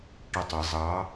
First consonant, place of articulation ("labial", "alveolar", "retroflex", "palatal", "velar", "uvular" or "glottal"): retroflex